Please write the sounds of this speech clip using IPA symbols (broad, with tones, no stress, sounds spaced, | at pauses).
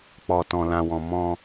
k͡p ɔ˨ t ɔ̃˨ l ã˨ w ɔ̃˨ m ɔ̃˧